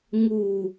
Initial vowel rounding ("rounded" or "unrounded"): rounded